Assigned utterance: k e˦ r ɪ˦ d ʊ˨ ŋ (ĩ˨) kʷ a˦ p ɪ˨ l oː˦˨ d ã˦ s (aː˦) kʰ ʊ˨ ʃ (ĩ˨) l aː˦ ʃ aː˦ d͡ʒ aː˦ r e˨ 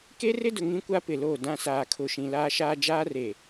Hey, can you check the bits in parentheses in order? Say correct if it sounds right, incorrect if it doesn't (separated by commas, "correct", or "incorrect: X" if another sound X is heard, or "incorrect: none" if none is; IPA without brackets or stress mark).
incorrect: ĩ˦, incorrect: aː˨, correct